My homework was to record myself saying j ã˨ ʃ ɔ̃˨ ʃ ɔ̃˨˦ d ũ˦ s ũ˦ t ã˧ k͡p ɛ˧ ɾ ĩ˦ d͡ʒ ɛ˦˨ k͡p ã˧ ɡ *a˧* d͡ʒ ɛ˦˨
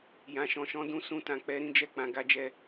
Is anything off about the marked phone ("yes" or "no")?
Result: yes